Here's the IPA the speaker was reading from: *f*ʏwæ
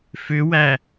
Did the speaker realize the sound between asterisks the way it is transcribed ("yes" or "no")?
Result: yes